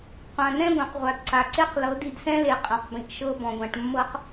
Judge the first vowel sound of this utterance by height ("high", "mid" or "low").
low